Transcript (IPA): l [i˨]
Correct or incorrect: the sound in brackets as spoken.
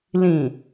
incorrect: ĩ˨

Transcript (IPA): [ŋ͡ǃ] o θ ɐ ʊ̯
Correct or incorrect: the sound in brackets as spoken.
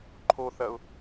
incorrect: ǃʰ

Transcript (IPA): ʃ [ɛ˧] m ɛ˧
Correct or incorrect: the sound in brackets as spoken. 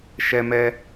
correct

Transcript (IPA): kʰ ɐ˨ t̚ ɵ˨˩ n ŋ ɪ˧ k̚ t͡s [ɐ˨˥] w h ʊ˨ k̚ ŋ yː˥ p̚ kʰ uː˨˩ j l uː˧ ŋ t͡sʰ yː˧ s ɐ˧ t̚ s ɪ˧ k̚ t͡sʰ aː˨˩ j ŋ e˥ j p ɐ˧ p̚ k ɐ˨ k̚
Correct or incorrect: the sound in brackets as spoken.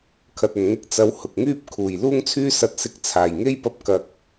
incorrect: ɐ˨˧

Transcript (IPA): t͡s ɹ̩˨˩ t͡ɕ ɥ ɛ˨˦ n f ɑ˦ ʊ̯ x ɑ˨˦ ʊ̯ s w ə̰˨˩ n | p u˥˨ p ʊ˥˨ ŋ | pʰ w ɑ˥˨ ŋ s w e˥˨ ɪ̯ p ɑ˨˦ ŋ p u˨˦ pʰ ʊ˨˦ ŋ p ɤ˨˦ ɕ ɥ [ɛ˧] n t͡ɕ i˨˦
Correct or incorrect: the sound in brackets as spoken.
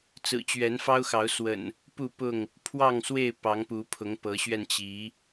correct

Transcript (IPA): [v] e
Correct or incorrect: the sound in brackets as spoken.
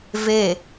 correct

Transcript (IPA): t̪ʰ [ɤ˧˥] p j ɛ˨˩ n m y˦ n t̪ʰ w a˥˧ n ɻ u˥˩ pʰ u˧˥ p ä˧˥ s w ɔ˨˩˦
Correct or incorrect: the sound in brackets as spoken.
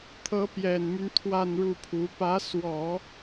correct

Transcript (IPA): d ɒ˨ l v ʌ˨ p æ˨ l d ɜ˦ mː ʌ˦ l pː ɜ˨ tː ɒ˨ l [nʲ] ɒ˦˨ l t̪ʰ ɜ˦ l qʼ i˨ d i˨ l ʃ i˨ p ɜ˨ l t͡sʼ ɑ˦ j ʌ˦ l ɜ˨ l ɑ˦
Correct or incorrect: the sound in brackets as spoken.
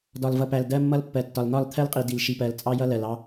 incorrect: n̪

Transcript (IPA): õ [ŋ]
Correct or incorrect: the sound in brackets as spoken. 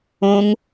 correct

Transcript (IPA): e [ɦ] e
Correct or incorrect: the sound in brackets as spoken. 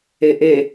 incorrect: ʔ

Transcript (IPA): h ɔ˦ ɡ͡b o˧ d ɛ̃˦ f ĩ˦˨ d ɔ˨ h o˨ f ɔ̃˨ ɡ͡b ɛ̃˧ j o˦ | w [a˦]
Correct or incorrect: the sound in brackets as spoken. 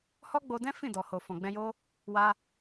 incorrect: a˧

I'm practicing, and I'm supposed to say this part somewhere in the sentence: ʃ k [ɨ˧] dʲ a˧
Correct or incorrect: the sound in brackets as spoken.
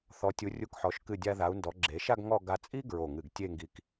incorrect: ɨ˧˩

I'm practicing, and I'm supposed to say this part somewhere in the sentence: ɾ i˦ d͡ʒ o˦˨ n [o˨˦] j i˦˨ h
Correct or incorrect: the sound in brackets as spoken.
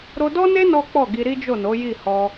correct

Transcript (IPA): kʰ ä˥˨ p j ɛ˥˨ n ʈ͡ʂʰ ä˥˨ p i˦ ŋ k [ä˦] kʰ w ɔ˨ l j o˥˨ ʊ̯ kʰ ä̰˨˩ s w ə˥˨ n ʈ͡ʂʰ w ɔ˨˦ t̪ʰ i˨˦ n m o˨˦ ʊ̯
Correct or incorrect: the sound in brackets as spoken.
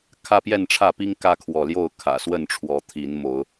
correct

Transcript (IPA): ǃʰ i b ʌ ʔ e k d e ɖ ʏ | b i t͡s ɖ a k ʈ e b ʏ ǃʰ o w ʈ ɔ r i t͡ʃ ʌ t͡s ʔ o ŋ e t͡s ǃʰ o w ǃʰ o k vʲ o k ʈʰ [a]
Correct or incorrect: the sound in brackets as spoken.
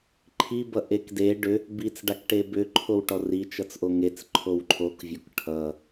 incorrect: ʌ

